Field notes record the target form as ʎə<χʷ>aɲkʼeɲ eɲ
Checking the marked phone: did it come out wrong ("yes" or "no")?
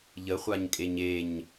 no